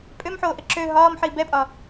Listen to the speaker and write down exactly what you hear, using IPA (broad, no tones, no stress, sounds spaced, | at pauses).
pʼ ø m ħ oː ʔ ə ǁ ø ɦ ɒː m ħ i b ɛ pʼ ɒ